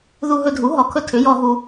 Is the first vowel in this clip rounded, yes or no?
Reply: yes